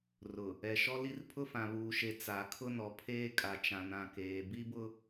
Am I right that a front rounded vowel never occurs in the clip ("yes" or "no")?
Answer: yes